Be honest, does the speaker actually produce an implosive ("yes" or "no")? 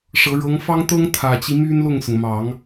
no